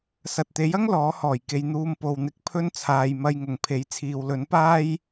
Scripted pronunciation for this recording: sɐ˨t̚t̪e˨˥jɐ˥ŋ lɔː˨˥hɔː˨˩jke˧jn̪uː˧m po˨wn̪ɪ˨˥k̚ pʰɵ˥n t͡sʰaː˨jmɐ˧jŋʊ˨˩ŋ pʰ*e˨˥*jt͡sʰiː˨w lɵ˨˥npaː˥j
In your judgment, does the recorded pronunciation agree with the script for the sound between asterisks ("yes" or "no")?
yes